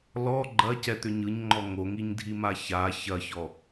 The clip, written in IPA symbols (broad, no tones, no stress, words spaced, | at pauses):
lɔ ɡ͡ǃɐcɛt̪ʏ ɲɯɲŋ͡ǃɔ ŋoŋiɲdʱima ça çɐçɔ